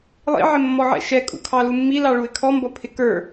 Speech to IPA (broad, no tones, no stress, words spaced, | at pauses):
lˠḭʕɪmːɔʕɛ̰ ʃɛkʼṵkʰɑ lumːilɑɭuɪ̯ kʰɔmbʌ pʰɪkə˞